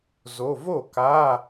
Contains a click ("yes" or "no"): no